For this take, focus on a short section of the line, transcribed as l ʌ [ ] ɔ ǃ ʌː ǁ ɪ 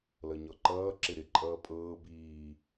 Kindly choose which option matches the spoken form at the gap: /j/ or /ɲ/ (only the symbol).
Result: ɲ